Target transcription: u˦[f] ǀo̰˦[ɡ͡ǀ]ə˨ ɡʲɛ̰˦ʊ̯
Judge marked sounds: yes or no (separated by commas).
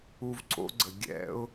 no, yes